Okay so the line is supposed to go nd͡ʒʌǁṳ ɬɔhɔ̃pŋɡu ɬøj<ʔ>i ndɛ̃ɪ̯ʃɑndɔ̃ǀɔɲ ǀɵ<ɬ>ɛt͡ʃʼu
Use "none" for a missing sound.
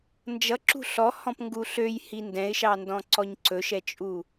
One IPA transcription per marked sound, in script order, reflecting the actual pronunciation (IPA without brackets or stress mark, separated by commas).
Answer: h, ʃ